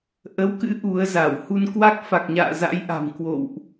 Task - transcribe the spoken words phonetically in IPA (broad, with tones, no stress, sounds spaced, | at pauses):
ʔ ə˨˦ w k ɨ̰˧˥ ʔ u˨˦ ə̯ z a˧˩ w h u˧ n k w a˦˥ k̚ f a˨˩ k̚ ɲ a̰ː˧˨ z a̰˧˥ j ʔ a̤˨˩ m k w o̰˧˨ w ʔ